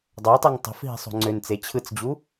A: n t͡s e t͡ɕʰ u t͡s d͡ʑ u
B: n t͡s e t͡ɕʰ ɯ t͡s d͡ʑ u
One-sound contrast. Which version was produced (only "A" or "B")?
B